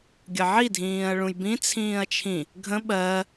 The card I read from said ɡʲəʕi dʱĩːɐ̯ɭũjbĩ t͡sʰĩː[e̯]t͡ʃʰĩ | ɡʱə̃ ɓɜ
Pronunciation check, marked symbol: incorrect: ɐ̯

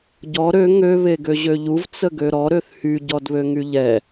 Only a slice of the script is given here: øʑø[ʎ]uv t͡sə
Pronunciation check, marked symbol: correct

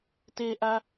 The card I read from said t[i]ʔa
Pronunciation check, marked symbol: incorrect: e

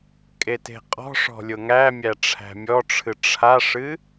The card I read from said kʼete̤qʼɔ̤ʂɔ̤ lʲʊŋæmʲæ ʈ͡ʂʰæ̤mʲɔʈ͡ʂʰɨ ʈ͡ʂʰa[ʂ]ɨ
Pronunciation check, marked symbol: correct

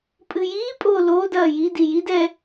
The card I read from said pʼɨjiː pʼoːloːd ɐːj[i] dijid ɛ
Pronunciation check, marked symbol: correct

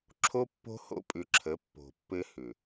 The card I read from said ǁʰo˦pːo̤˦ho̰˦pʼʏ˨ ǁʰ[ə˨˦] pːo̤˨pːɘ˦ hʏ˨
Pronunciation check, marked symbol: correct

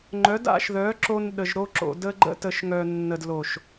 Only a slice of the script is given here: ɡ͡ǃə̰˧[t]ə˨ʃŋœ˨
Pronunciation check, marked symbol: correct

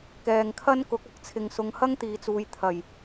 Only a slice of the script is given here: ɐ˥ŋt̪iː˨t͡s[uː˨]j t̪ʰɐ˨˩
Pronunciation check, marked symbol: correct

